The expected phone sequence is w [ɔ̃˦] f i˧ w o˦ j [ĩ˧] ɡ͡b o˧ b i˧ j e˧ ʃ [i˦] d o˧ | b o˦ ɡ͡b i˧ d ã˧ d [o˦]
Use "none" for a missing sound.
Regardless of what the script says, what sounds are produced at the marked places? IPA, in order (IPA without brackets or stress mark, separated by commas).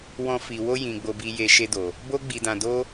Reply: ɔ̃˦, ĩ˧, e˦, o˦